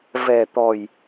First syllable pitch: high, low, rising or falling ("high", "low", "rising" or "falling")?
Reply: low